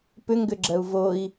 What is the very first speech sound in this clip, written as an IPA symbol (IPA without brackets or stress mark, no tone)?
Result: p